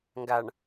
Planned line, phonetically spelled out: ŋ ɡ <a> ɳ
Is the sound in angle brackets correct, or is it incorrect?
correct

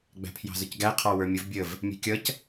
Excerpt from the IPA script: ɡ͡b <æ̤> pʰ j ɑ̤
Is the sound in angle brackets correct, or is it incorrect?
correct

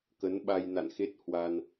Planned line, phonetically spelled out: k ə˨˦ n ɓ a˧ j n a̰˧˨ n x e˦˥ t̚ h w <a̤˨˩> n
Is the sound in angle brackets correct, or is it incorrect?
incorrect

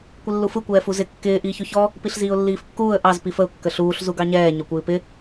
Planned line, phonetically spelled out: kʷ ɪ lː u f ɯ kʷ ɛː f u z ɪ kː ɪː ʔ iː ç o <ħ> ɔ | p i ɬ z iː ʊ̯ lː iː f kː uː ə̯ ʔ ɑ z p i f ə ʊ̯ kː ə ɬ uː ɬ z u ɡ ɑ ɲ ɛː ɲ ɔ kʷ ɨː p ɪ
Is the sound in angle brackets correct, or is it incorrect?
incorrect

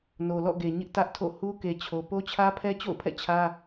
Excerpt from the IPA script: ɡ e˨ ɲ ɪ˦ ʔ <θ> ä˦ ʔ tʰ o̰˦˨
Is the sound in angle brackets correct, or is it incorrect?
incorrect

